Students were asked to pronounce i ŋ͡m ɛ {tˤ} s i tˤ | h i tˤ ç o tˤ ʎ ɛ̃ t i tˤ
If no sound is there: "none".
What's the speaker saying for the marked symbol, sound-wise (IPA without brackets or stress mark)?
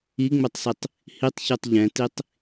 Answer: tˤ